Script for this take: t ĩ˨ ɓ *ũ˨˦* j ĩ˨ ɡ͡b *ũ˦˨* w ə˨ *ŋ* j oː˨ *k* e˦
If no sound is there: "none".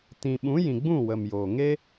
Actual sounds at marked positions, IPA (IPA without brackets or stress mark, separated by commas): ũ˨˦, ũ˦˨, m, ŋ